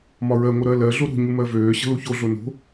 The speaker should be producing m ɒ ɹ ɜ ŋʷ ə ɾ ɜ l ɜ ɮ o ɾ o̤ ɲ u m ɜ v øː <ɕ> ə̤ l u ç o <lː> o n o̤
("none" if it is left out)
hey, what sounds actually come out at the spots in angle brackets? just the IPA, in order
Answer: ɕ, ɮ

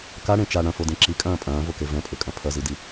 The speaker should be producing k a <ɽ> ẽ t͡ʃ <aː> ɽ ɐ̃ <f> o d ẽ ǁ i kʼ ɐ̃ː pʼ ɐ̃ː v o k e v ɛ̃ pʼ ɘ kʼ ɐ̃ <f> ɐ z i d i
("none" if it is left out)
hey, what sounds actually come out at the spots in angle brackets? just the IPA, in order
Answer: ɽ, a, f, pʰ

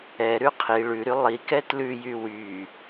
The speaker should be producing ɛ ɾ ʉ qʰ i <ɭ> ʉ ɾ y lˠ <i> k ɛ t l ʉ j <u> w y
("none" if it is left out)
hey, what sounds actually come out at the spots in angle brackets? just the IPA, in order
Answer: ɭ, i, y

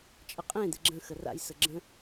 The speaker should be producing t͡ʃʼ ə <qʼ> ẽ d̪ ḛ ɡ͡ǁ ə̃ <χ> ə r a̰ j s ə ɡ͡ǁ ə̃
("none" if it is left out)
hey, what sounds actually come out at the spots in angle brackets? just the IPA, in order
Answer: qʼ, x

